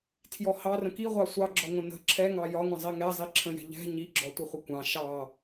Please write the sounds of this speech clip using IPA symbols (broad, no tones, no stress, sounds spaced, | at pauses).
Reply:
tʰ j ɔ h ɑ r ə̃ k i ʁʷ ɑ sʷ ɑ ɡ͡ǁ ɔ ŋʷ ə̃ n ə̤ ǁʰ ɛ ŋ ɑ j ɒ ŋʷ ə̃ zˤ i ŋ ɛ zˤ i ǁʰ ə̃ j ɛ̤ ʎ ɛ̤ ɲ i ɡ͡ǁ ɔ tʷ ə χʷ ə kʷ ɑ̃ ʃ ɑ